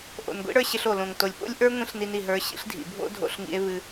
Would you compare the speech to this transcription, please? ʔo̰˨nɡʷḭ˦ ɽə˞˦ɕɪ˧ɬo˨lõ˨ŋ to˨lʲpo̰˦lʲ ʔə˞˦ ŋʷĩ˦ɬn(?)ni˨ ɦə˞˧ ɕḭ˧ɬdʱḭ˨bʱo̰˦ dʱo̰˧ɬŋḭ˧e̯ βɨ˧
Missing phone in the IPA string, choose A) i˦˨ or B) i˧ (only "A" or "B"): B